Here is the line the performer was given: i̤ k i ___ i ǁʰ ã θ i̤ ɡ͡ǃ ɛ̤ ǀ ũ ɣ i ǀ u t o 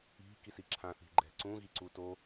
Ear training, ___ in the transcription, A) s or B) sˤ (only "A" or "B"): A